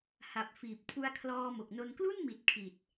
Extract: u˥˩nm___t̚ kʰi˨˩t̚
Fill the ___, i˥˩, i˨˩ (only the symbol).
i˨˩